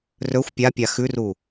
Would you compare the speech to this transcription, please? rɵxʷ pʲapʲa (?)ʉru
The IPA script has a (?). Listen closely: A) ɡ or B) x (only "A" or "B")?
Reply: B